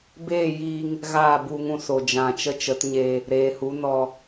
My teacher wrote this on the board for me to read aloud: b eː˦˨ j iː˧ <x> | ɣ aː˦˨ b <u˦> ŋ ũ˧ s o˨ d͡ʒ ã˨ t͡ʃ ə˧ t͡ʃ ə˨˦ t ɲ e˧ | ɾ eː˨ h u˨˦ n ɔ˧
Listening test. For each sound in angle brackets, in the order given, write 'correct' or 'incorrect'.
incorrect: ŋ, incorrect: u˧

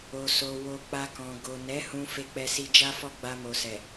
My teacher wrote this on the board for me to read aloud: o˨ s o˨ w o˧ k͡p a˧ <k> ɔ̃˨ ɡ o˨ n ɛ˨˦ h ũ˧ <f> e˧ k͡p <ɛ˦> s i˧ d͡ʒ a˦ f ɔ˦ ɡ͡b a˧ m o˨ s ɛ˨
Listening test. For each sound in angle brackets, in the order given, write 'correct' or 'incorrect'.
correct, correct, incorrect: ɛ˧

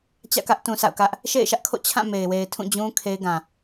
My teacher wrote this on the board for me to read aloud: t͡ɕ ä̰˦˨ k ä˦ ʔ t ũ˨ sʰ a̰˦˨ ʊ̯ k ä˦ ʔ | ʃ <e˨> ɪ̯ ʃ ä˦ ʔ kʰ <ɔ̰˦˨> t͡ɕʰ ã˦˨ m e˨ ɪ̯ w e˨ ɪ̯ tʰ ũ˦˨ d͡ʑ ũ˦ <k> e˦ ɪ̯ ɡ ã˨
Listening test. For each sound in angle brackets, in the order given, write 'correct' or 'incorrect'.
incorrect: ḛ˦˨, incorrect: o̰˦˨, incorrect: kʰ

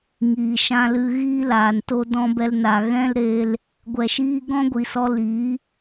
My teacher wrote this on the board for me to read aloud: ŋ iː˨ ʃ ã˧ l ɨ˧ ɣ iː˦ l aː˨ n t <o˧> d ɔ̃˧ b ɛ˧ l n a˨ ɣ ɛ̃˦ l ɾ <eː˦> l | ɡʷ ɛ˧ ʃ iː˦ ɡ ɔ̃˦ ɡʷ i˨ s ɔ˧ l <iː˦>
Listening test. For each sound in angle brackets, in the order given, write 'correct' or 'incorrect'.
correct, incorrect: eː˧, incorrect: iː˨˦

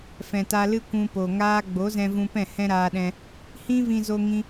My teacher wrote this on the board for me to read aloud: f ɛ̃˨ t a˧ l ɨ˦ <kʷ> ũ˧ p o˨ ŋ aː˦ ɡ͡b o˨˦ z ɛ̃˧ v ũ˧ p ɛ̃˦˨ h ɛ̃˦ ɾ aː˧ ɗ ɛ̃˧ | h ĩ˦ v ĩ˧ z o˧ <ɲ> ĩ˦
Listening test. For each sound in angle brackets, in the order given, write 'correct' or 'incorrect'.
correct, incorrect: ŋ

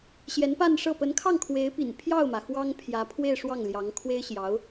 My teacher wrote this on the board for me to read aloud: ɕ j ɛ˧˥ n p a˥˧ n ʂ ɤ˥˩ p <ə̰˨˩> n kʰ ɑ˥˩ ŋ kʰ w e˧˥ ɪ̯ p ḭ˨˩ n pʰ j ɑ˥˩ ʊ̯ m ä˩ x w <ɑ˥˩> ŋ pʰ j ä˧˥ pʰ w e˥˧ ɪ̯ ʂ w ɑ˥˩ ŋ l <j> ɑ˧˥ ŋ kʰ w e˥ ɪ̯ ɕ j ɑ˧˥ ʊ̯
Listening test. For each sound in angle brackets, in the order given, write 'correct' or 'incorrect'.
incorrect: ə˧˥, incorrect: ɑ˥, correct

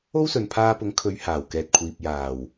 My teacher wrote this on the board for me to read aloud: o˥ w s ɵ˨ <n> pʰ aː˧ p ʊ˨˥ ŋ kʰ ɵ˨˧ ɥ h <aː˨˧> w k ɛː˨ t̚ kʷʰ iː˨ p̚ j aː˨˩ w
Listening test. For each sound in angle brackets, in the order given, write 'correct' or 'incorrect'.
correct, incorrect: aː˨˩

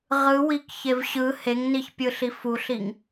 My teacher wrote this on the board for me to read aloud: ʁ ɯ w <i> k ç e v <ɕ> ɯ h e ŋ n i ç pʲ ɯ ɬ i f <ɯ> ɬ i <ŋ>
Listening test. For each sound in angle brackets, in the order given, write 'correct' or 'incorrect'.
correct, correct, incorrect: u, correct

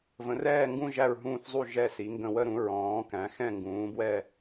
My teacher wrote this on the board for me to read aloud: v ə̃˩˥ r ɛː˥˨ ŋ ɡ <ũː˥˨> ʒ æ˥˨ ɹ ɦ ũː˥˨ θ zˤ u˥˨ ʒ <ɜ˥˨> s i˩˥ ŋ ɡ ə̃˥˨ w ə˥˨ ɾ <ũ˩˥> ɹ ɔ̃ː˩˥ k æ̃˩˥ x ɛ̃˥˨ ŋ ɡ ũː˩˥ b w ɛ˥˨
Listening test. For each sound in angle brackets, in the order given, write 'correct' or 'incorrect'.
incorrect: ũ˥˨, incorrect: ɛ˥˨, correct

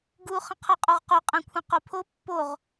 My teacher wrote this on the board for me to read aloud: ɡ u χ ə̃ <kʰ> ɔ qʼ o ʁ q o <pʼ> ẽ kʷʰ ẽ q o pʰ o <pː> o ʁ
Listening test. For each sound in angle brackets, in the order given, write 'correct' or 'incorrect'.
incorrect: qʰ, incorrect: qʼ, correct

